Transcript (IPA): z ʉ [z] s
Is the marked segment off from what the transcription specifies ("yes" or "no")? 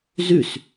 yes